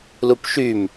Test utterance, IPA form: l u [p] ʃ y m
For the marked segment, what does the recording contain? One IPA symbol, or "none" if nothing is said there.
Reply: p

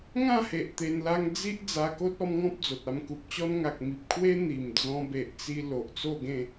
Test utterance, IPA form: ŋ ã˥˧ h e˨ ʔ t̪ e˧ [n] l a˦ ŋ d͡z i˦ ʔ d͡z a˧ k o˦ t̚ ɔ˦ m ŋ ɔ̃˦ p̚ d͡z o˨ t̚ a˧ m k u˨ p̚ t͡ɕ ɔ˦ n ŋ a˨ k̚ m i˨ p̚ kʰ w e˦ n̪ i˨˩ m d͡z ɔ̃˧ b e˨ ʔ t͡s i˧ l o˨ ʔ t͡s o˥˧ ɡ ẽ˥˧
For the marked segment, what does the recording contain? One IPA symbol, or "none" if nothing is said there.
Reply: n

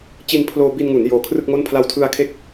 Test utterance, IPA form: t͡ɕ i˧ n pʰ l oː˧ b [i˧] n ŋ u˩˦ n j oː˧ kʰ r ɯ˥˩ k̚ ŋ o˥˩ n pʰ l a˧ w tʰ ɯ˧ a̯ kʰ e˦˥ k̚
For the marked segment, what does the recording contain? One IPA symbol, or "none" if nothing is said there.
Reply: i˧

